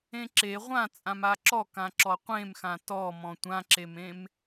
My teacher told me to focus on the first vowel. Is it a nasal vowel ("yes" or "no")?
yes